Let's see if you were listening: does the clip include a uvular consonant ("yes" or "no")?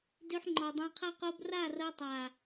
yes